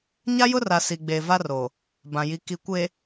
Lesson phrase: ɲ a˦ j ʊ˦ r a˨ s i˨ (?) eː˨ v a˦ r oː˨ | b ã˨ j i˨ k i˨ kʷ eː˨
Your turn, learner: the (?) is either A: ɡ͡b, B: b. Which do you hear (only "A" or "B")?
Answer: A